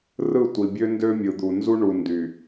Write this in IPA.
r ɯ˦˨ tʷ i˨ bʲ ø˦ n d ø˦ mʲ ɯ˨ d̪ u˨ n z u˦ ɳ u˨ n d y˨

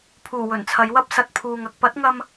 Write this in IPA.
pʰ uː˨˩ w ɵ˨˩ n t͡sʰ ɐ˨˧ j w ɐ˥ p̚ s ɐ˨ t̚ pʰ uː˨ ŋ ɐ˧ k̚ p ɐ˨˥ t̚ ŋ ɐ˧ m

